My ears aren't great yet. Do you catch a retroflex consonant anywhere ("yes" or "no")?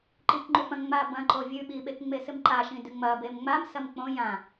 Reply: no